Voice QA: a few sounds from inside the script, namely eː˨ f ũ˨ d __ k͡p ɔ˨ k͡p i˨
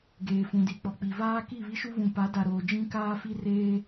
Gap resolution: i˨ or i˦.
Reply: i˨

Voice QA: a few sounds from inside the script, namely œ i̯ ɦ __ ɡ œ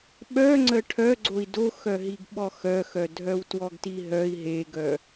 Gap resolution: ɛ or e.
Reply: e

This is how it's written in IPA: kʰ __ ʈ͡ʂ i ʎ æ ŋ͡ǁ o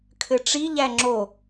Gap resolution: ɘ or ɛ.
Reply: ɘ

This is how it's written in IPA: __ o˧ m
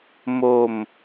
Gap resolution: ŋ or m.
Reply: m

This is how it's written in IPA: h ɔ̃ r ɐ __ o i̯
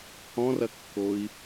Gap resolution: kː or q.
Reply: kː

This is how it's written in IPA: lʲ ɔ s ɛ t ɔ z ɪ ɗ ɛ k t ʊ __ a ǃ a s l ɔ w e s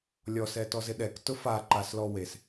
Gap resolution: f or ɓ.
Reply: f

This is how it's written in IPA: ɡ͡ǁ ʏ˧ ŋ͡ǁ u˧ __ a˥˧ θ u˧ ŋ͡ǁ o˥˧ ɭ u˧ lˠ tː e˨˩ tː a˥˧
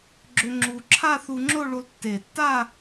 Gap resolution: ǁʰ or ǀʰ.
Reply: ǁʰ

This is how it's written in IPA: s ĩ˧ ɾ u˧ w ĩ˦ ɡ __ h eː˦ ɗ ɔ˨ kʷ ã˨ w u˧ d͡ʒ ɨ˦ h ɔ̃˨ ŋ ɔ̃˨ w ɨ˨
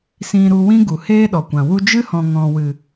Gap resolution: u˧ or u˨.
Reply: u˨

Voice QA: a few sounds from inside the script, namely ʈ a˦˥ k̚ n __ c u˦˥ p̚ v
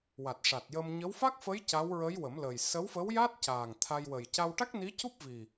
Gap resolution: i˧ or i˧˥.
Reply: i˧˥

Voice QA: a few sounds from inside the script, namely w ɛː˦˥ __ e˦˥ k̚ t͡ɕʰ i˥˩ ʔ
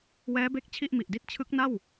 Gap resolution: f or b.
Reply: b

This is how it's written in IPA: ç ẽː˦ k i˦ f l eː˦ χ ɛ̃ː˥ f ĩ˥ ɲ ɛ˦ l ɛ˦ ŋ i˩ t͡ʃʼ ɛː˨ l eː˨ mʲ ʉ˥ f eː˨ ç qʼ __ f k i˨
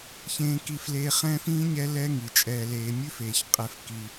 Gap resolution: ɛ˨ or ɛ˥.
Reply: ɛ˨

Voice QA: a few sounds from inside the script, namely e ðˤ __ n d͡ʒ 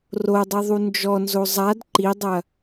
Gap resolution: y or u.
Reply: u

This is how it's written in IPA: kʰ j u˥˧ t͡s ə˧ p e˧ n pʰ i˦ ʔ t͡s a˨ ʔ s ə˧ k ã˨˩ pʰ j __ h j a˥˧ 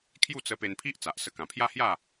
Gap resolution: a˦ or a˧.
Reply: a˦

